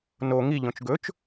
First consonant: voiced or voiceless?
voiced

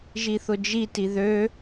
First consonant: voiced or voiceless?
voiced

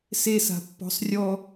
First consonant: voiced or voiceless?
voiceless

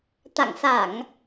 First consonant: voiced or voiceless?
voiceless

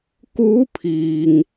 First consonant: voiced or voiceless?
voiceless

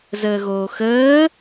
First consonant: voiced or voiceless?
voiced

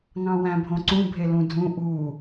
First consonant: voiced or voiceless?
voiced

